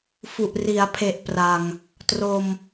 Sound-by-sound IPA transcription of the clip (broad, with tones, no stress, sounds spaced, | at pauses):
f u˨˩ ʔ r i˩˦ a̯ pʰ e˨˩ ʔ p r a˨˩ ŋ | t r o˧ m